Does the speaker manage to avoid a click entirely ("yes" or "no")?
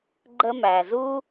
no